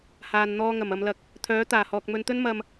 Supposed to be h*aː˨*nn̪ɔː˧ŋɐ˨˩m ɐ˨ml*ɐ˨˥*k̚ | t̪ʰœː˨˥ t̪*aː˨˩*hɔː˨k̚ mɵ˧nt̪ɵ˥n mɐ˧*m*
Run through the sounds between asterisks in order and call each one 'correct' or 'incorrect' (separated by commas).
correct, incorrect, correct, correct